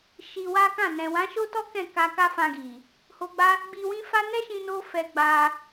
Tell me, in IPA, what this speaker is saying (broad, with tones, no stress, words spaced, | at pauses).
ʃi˧wa˦kã˦˨ nɛ̃˨wã˨˦ʃo˦tɔ˦ kɛ̃˦˨ka˧ka˦ fã˧ɡi˨ | ho˧ɡ͡ba˦ | ɡ͡bi˧wĩ˦fa˦ nɛ˦ʃĩ˧no˧ fɛ˧ɡ͡ba˧